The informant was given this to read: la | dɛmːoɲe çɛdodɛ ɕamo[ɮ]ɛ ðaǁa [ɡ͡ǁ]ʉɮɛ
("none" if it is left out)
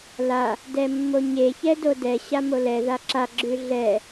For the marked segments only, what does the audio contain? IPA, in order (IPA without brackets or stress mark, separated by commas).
l, ɡ͡ǁ